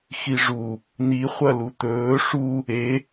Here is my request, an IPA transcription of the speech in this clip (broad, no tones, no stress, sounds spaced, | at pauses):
x i ʐ u | n̪ i χʷ ɐ l u t̪ ɵː ʂ u | e